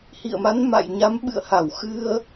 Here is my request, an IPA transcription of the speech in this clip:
h ḭ˧˨ ə̯ m a˨˦ n m a̰˧˨ j ɲ a˨˦ m ɓ ɨ̰˧˨ ə̯ h a˧˩ w x ɨ˧ ə̯

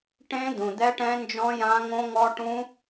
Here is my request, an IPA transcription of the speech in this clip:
ʈ ẽ˦˥ d̪ ũ˩ d̪ ɛ˦˥ ʈ ɛ̃˦˥ n d͡ʒ ɔ̃˦˥ j ã˦˥ ŋ õ˦˥ ŋ ɔ˦˥ ʈ ũ˦˥

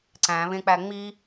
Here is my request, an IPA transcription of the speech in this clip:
ǀ æ̃ β ẽ k͡p æ ŋ͡m i

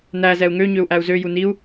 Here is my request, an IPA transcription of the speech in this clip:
n æ z ɛ u̯ ŋ ø ɲ ø u̯ ʔ æ u̯ z ø j u n i u̯

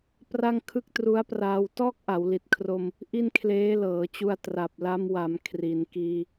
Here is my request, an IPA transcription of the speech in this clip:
p r a˥˩ ŋ kʰ ɯ˥˩ k̚ t r u˦˥ a̯ p r aː˧ w t ɔː˥˩ k̚ ʔ a˩˦ w l i˨˩ t̚ kʰ r o˧ m | ʔ i˥˩ n kʰ l eː˦˥ l ɤː˩˦ t͡ɕ u˧ a̯ t r a˨˩ p̚ l a˧ m w a˩˦ m kʰ r i˩˦ n k iː˧

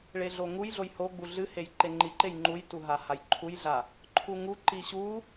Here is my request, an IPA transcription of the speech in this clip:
ɭ e ɮ o ŋ u j ɮ o j h o ɡ͡b u ɮ ɨ h e j ǃ e ŋ͡ǃ i ǃ e j ŋ͡ǃ u j t u ɦ a h a j ǃʰ u j ɮ a | ǃʰ u ŋ u ǃ i ɕ u

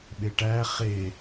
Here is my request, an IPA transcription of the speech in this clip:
ɓ e ʈ æ χ e

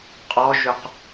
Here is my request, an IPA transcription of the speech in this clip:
qʼ ɔ ʒ ʏ q

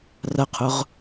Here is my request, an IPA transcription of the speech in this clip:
r ɐ qʰ ʊ ʁ

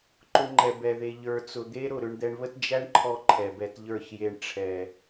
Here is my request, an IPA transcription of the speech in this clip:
ǃ ʊ˧ ŋ͡ǃ ɛ˨ b ɛ˨ ð e˨ ʎ ə˞˨ t͡s ʊ˨ d̪ e˦ ɾ ʊ˦˨ ɾ ʏ˧ ɳ d̪ ɛ˧ ɳ β ə˦ t d͡ʒ æ˦ ɳ ǃʰ ɔ˧ ǃʰ ɛ˨ b ɛ˧ t ʎ ə˞˦˨ ç j e˧ ɳ ʈ͡ʂʰ ɛ˨

